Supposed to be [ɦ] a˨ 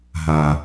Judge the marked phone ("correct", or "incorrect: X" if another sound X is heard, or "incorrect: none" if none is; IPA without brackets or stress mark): correct